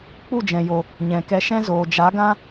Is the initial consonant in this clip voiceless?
yes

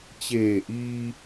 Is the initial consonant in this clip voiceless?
yes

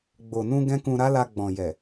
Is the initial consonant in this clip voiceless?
no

